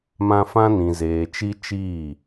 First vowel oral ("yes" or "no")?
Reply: no